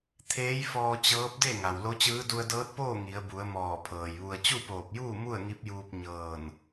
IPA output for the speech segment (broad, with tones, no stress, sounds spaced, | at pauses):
t̪ʰ eː˧˥ j f ɔː˧ t͡ɕ ɤː˧˥ p̚ d e˥˨ ŋ a˩ w l o˧˥ t͡ɕ ɯː˧˥ d u˧ ə̯ d ɤː˧˥ t̚ p oː˥˨ ŋ i˩˧ ə̯ b u˩˧ ə̯ m ɔː˧˩ pʰ ɤː˩ j ʋ u˧ ə̯ t͡ɕ u˥˨ p oː˧˩ p̚ j uː˥˨ m u˥˨ ə̯ ŋ i˧˥ p̚ j uː˧ p̚ ɲ ɤː˧˩ n